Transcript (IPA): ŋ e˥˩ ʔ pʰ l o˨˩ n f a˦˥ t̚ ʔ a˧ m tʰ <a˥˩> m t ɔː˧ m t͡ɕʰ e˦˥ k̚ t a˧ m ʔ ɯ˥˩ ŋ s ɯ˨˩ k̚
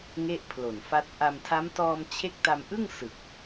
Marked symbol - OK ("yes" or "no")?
no